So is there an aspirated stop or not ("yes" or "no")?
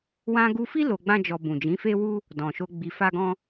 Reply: no